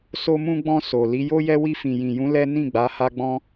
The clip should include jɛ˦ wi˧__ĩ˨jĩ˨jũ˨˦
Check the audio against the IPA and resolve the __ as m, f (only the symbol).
f